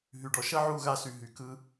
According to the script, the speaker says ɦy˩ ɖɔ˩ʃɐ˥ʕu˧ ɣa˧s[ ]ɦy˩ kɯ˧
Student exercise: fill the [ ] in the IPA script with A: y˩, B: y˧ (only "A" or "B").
A